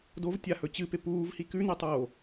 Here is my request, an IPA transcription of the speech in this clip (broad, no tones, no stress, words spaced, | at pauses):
dovtʲahɵ t͡ɕɨpe puːvhi kʉnetˤoː